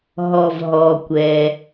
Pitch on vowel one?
low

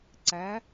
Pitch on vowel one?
rising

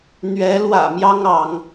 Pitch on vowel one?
rising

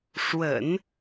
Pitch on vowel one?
low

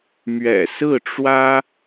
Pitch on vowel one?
low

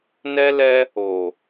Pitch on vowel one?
high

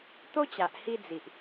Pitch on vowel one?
high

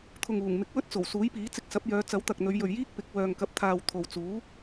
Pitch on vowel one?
low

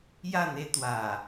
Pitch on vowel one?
falling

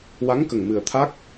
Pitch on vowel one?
rising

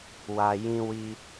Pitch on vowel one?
low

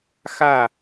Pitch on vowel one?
falling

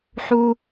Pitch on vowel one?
high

